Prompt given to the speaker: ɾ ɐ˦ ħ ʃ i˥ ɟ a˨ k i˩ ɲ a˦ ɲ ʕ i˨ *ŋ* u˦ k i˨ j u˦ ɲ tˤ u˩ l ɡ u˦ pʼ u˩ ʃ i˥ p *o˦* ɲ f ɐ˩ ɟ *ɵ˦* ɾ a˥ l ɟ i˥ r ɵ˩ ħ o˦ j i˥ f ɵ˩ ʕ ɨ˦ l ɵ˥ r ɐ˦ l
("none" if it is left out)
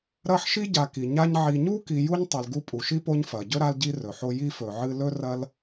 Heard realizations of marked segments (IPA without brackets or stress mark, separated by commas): ɲ, o˦, ɵ˥